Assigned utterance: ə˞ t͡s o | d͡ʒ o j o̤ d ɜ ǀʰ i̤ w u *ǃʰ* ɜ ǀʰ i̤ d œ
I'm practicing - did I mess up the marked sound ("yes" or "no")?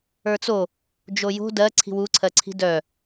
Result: yes